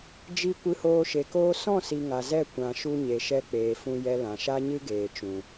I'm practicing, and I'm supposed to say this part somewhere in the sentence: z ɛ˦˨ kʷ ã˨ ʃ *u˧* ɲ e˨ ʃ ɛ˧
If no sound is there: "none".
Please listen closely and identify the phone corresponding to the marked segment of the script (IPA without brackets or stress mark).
u˧